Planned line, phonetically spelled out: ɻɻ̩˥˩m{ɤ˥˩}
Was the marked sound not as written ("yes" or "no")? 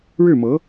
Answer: yes